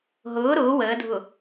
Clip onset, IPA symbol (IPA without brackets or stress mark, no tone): ɦ